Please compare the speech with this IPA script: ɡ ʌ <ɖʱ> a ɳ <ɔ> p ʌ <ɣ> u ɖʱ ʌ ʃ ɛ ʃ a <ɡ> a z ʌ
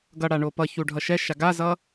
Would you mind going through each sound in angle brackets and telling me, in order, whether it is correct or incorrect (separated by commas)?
incorrect, incorrect, incorrect, correct